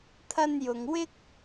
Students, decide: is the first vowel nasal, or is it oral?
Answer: oral